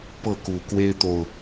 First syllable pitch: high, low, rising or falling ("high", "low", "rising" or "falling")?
falling